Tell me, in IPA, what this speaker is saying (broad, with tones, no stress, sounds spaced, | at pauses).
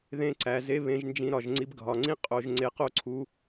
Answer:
ð ẽ˦ ǀ æ˧ z e˦ β ẽ˧ ʒ n d͡ʒ ĩ˧ ɾ ɒ˨ ʒ ŋ͡ǀ i˧ b ɡʱ ɒ˨ ŋ͡ǀ ĩ˦ qʼ o˧ ʒ ŋ͡ǀ e˧ q o˦ ǀʰ u˧